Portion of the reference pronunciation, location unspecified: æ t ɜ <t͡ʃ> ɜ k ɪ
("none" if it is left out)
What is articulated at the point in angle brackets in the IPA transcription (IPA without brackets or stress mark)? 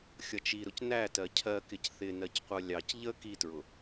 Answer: cʰ